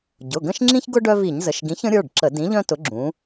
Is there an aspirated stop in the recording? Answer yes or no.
no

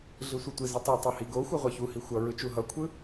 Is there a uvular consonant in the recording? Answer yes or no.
yes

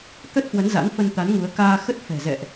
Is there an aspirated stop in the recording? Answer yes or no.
no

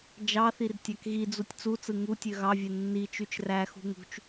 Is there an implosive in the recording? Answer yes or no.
no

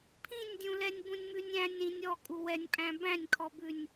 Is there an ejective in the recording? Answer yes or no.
yes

